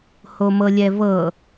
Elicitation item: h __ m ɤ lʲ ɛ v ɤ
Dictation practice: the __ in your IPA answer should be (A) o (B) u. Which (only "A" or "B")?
A